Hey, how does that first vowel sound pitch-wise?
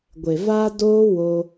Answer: low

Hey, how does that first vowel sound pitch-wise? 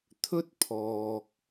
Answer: high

